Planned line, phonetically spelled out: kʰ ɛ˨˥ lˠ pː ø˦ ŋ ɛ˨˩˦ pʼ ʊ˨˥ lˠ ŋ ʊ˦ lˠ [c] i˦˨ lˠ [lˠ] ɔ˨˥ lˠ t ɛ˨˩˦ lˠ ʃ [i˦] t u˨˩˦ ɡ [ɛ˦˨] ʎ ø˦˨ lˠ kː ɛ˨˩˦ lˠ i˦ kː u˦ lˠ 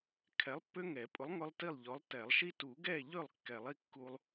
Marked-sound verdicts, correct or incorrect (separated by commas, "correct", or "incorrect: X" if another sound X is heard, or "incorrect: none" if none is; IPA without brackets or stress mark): incorrect: t, incorrect: ʎ, correct, correct